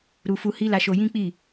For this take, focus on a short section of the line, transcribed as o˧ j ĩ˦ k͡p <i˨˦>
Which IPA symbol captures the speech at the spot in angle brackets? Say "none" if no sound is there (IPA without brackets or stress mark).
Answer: i˦˨